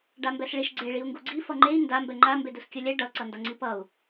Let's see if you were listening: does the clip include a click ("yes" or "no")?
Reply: yes